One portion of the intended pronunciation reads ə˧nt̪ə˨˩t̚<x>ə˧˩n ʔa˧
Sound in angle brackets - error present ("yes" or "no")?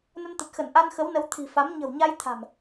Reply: no